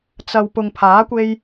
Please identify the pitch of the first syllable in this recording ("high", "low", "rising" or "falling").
low